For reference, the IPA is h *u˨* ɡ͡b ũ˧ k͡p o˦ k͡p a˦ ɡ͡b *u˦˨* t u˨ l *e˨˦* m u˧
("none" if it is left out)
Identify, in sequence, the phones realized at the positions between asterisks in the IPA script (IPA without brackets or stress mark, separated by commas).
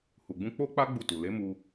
u˨, u˦˨, e˨˦